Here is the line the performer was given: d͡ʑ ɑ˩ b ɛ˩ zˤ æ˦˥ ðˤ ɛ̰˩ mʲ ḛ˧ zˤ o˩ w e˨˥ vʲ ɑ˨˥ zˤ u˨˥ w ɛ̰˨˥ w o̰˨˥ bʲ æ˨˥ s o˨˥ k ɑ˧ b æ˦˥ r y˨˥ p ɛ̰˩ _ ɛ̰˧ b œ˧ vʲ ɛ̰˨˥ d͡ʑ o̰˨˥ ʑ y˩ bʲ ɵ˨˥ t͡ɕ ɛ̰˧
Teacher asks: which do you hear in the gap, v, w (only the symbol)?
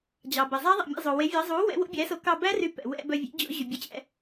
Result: w